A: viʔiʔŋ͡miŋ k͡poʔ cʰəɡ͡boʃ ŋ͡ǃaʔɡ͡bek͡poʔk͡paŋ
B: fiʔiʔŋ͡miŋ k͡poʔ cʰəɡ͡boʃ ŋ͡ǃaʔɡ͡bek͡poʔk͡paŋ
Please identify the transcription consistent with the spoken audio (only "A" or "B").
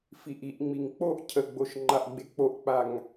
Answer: B